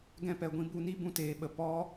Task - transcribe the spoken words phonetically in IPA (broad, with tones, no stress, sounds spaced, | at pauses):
ɡ ɛ̃˧ p ɛ˨ ɡʷ ĩ˧ b u˧ n i˦ b ũ˧ t eː˨ ɓ ə˨ p ɔ˦